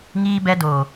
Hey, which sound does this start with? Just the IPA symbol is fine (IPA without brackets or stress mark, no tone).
ŋ